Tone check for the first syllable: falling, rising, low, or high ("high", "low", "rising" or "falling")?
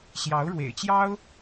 rising